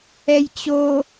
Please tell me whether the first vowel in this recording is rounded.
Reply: no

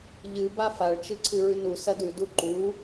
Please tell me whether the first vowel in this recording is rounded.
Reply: no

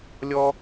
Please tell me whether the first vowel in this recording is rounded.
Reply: yes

